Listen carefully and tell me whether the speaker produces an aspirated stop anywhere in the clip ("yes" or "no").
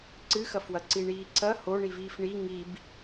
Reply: yes